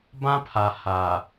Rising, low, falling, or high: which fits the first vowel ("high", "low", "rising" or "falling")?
high